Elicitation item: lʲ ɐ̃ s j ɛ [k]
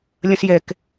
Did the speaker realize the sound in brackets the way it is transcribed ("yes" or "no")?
yes